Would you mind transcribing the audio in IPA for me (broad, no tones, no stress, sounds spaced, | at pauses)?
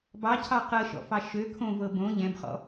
b ɑ cʰ ɑ q ɤ ʃ ɔ̰ f ɑ ʃ ø kʰ õ v ɤ b õ ʎ ɛ̃ b χ ɔ̰